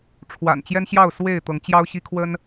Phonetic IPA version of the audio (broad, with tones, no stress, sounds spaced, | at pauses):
ʈ͡ʂʰ w a̰˨˩ n t͡ɕ j ɛ˦ n ɕ j ɑ˥˨ ʊ̯ s w e˥˨ ɪ̯ t̪ ɤ˨˦ ŋ t͡ɕ j ɑ˦ ʊ̯ ɕ i˦ kʰ w ə˦ n